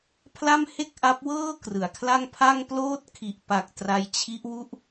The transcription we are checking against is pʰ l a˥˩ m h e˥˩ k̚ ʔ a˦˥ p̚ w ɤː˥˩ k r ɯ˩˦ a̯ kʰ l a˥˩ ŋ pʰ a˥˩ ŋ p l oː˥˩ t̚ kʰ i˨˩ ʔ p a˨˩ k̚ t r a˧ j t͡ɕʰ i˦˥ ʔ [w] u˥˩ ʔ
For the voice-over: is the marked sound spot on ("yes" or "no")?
yes